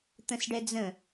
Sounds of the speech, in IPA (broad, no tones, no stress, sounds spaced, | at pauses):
t̪ ə̃ s ɖ ɛ d͡z ə̃